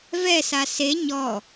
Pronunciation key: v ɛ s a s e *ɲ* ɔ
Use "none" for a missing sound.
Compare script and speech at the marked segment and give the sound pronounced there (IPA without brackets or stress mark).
ɲ